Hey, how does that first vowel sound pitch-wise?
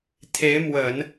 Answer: rising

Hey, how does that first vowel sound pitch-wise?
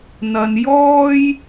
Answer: low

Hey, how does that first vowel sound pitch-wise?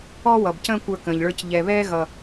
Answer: high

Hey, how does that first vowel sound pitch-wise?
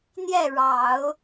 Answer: falling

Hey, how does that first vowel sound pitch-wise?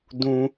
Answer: low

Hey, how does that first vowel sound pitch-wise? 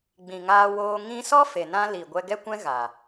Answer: low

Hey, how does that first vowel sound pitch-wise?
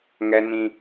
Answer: high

